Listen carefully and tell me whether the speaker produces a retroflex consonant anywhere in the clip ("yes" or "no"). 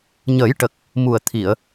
yes